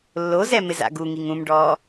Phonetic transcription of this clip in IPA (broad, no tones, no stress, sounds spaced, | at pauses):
lː o z ɛ m ɪ z a̰ ɡ u ŋ i ŋ ũ m ɖ ɔː